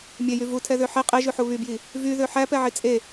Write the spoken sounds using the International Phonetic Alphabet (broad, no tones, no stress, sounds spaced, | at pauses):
mʲ e j y v u tʰ ɛ ð ø ħ e qʼ e ʒ ʉ ħ u β y b j i | v y ð ø ħ æ p ɛ ʕ i t͡sʼ e